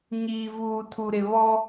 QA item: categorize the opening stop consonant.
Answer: aspirated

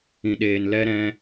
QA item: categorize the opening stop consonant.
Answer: implosive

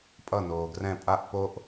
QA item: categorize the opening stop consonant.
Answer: ejective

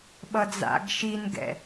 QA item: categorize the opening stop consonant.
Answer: implosive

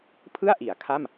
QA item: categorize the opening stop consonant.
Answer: aspirated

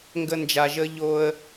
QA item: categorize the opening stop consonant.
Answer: plain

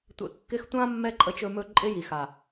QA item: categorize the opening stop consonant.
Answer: plain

